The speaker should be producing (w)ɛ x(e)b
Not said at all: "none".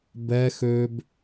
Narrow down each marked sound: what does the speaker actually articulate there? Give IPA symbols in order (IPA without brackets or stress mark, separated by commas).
b, ø